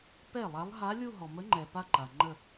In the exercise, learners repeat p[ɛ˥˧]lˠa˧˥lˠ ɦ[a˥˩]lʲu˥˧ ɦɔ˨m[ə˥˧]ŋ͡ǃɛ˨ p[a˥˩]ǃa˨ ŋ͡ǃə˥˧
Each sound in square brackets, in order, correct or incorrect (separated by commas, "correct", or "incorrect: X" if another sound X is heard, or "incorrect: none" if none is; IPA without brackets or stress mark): incorrect: ɛ˥˩, incorrect: a˧˥, incorrect: ə˧˥, incorrect: a˥˧